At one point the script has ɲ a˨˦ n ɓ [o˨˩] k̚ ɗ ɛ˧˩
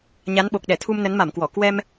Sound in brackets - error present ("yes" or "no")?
no